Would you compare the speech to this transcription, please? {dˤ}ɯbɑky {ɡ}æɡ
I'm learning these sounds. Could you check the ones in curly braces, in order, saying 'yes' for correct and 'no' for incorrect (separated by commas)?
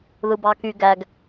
no, yes